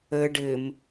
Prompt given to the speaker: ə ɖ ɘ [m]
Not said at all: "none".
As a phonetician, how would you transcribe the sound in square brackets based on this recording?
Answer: m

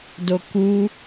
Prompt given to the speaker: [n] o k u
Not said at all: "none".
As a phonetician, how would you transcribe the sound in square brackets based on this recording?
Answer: d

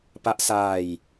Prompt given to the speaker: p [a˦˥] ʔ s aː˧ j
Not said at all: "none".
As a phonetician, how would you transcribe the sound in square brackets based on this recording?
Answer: a˦˥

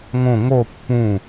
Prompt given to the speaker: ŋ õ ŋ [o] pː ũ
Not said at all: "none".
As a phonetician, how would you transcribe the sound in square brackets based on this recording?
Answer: o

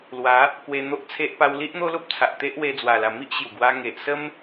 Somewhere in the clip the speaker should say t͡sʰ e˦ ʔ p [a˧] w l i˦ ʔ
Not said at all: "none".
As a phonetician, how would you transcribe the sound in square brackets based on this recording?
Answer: a˧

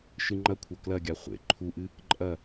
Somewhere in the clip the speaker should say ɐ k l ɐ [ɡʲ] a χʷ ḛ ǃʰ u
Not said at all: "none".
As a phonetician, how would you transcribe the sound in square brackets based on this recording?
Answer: ɡʲ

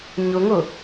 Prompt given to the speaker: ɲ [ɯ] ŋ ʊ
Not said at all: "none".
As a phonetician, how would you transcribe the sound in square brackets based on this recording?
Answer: ʊ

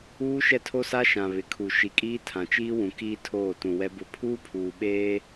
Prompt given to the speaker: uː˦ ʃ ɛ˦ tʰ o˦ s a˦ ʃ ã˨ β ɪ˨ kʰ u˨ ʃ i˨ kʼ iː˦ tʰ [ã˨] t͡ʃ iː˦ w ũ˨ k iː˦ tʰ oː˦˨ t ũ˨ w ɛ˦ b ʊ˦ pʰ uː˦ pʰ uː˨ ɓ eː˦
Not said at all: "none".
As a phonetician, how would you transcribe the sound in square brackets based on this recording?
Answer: ã˨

